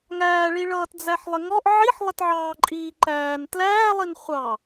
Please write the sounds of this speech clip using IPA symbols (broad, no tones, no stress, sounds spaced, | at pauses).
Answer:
ŋ æː ɭ i ɭ ʌː t d͡z æ ħ lˠ ɪ ŋ ɔ ʔ ʕ i ħ lˠ ɪ t ʕ ɑː ǃʼ iː ǃ æː n t l æː lˠ i n χʷ ɑ